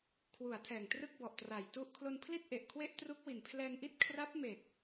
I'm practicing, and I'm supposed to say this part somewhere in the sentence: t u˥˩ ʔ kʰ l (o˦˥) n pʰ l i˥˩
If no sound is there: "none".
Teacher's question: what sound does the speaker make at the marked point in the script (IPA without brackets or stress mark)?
o˧